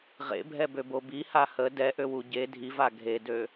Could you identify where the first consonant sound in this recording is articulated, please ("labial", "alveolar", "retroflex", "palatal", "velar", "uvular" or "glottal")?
uvular